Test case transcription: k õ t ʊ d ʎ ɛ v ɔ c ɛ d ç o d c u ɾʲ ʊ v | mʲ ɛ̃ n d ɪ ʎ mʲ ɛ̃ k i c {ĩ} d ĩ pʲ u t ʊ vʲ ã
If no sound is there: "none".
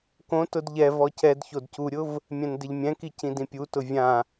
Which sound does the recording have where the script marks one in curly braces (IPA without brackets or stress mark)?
ĩ